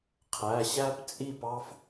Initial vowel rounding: unrounded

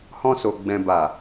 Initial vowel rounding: rounded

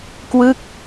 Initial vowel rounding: unrounded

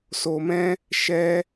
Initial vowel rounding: rounded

